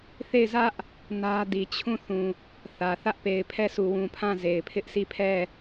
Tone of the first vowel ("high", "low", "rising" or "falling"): falling